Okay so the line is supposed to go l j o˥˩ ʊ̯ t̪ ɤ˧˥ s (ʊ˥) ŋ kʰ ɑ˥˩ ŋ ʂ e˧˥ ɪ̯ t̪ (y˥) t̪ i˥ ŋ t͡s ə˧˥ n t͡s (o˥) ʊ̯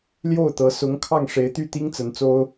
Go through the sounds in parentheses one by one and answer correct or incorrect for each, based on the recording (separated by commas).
incorrect, incorrect, correct